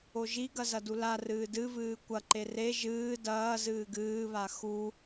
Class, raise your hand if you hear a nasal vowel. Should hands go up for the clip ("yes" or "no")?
no